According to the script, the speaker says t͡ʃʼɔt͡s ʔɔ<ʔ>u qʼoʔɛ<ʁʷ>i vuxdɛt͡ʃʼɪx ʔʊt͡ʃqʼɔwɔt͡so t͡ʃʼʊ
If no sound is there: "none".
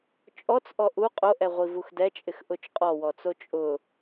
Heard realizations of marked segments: ʔ, ʁʷ

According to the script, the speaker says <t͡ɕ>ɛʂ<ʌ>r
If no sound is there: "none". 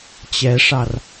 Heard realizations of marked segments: t͡ɕ, ɑ

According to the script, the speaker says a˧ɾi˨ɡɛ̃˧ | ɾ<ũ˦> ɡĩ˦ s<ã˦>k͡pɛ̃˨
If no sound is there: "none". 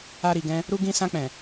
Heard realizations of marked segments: u˦, ã˧

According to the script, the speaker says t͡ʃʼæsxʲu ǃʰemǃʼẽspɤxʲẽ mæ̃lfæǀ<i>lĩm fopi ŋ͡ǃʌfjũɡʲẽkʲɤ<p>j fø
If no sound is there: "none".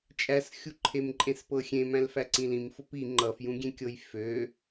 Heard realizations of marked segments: ĩ, none

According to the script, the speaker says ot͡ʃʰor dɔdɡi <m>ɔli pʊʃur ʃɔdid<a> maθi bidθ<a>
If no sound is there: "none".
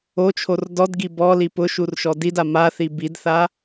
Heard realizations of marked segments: b, a, a

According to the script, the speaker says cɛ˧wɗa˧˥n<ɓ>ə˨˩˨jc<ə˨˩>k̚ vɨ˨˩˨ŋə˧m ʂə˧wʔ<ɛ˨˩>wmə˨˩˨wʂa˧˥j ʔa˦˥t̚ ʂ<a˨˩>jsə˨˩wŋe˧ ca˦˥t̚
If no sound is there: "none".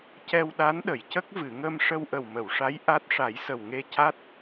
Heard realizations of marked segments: ɗ, ə˦˥, ə˨˩, a˨˩˦

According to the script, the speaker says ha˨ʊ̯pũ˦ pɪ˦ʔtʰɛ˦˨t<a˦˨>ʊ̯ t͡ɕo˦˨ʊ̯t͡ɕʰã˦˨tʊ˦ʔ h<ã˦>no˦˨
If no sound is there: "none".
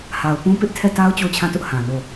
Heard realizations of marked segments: a˦, ã˨

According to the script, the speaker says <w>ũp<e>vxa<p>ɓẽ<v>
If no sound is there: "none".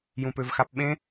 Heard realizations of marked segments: j, ø, p, none

